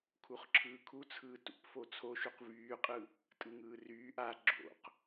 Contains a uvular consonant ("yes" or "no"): yes